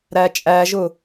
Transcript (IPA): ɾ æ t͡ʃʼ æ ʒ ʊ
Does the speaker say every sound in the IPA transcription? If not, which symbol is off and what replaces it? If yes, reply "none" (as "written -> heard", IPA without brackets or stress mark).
none